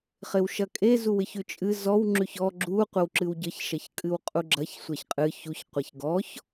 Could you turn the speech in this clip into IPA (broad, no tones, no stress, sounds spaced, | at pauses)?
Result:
χ ɪ w ʃ ɐ kʼ e z u w ɪ ç ʉ t͡ʃʼ ɨ z ɔ w ŋ͡ǁ ʉ ç ɔ ɡ͡ǁ u qʷ ə w ǁ ɨ w ɟ ə ç ʃ ɐ ç kʼ ɨ w qʼ u ɡ͡ǁ ɐ ç sʷ ɐ ç qʼ ɨ ç u ç qʷ a ç ɡ ɔ ç